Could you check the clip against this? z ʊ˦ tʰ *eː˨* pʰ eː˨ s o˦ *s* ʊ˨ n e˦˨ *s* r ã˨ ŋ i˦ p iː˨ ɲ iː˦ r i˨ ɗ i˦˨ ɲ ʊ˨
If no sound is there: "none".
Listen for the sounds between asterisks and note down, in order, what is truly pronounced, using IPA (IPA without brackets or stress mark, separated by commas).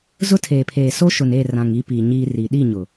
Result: eː˨, ʃ, none